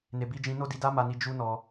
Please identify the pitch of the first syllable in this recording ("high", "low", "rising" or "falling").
low